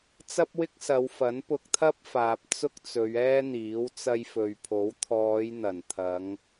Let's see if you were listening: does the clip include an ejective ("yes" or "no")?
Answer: no